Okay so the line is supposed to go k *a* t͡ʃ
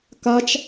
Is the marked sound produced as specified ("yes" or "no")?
yes